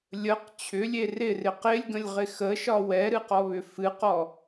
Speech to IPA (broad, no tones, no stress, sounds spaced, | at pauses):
lʲ ə q t͡ɕʰ ʏ lʲ e r ɪ r ɪ q ɪ lʲ ɡ ə̃ lʲ ʁ ɪ x ə ʃ ɒ w ɛ ɾ ɨ q ɔ β ʏ f ɨ q ɔ